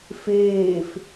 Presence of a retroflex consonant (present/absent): absent